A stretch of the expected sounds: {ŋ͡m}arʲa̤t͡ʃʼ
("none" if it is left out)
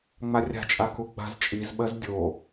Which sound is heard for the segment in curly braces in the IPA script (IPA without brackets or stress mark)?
ŋ͡m